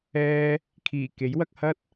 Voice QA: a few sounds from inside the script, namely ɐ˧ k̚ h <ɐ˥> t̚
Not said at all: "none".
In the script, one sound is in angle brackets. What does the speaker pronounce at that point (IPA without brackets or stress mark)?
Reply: ɐ˥